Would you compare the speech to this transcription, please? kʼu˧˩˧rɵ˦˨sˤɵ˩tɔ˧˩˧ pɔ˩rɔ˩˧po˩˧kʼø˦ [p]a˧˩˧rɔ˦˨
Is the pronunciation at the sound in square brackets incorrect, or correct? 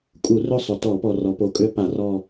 correct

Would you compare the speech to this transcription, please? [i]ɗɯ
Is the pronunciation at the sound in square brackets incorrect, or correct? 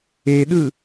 incorrect: e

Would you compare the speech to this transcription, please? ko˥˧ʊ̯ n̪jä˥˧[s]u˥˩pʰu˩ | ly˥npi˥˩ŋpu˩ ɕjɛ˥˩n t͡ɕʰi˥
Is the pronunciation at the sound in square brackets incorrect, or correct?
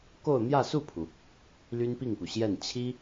correct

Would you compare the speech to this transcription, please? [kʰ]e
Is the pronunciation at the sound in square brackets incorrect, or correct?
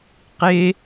incorrect: q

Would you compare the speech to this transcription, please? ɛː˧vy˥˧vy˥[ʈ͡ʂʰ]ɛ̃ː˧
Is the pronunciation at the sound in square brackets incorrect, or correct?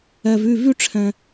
correct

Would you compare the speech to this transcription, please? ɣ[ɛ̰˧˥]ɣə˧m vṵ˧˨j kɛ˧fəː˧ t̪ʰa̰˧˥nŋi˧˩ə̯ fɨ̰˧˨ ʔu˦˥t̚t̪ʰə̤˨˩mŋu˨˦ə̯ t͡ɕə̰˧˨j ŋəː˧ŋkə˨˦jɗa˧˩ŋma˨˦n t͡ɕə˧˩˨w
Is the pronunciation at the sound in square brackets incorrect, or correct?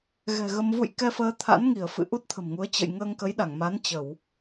incorrect: ɛ̤˨˩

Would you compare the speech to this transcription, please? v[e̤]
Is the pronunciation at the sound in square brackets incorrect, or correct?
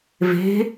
correct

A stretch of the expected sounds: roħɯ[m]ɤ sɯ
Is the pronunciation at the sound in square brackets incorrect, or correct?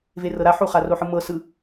correct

